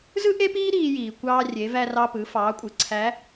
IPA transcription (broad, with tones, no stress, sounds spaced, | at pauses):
z ɯ˥ ʔ e˥ p iː˥ ɾ iː˧ j iː˩ kʷ ɑː˧ rʲ e˩˧ v æ˧ r ɑ˧ p ɯ˩˧ f ɑː˩˧ kʷʼ ɯ˩ ǀʰ æ˧˥